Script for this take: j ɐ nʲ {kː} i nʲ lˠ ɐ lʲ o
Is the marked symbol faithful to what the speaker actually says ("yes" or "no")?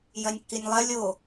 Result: yes